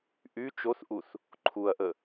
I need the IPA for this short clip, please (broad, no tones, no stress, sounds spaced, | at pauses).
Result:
ʔ y t͡ʃ o θ ʔ u θ | ǃʰ u ɐ̯ ʔ ə